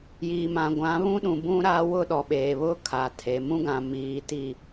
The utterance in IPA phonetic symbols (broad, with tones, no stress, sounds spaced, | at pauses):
j iː˨ m ã˨ ɡʷ ã˨˦ β ũ˦ ɗ ũ˨ b ũ˦ ɾ a˦ w ʊ˦ ɗ ɔ˨ ɓ eː˨ β ʊ˦ kʰ a˨ tʰ e˨ m ũ˦ ɡ ã˨ m iː˨ t i˦˨